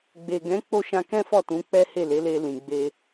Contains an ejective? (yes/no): no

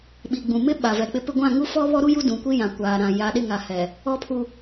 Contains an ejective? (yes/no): no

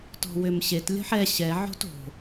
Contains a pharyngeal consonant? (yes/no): yes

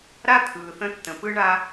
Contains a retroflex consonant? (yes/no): yes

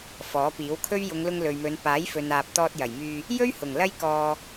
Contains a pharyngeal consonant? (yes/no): no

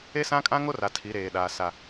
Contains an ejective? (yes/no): yes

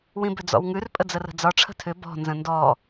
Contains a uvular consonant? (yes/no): no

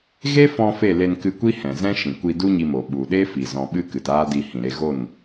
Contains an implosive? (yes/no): yes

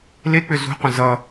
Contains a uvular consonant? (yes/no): yes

